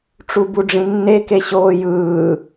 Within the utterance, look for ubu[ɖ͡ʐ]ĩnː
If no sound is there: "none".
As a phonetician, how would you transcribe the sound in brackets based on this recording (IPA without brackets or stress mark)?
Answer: ɖ͡ʐ